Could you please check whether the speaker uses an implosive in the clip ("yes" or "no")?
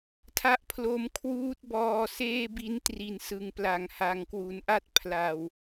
no